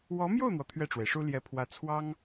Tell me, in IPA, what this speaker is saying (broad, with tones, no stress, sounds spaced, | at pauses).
w ɔ˧˥ m j o˥˩ ʊ̯ n̪ w ɔ˩ t̪ʰ ɥ ɛ˥˩ ʈ͡ʂ w e˩ ɪ̯ ʂ u˥ l j ɛ˧˥ pʰ w ä˧˥ t͡sʰ w ɑ˥ ŋ